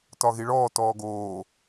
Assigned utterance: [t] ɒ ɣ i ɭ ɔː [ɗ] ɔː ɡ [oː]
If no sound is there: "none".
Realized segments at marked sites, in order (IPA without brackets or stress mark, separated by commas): t, t, oː